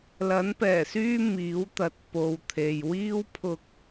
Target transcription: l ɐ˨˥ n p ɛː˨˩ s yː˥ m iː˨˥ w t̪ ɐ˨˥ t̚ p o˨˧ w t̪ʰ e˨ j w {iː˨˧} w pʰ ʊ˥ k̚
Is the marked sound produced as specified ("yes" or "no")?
no